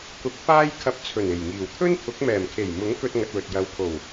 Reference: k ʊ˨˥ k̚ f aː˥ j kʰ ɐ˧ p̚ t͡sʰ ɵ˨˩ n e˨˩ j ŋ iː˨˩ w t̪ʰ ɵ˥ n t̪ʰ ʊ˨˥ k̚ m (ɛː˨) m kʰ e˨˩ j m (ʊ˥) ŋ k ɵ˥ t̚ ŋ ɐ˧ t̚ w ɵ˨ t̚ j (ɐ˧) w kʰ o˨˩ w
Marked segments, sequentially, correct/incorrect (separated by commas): incorrect, incorrect, correct